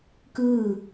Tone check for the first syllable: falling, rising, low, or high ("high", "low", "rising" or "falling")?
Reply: falling